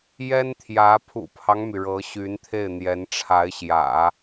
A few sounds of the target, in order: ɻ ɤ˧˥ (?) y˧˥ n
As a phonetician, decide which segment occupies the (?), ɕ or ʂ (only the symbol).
ɕ